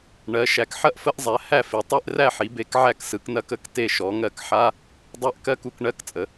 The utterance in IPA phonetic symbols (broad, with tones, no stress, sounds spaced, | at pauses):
ɳ ɜ˩˧ ʃ æ˩˧ k ħ ɐ˦˨ ʔ f ə˧˥˧ ʔ zˤ æ˩˧ h æ˦˨ f i˩˧ tˤ e˧˥˧ ʔ r æ˦˨ ħ i˩˧ b e˩˧ k ʕ æ˦˨ k s ɯ˩˧ k n ɐ˧˥˧ k ə˧˥˧ k t e˦˨ ʃ ɔ˩˧ ŋ ɜ˦˨ k ħ a˧˥˧ | dˤ æ˦˨ ʔ k ɜ˧˥˧ k u˩˧ k ɳ ɜ˧˥˧ k t͡sʼ ə˩˧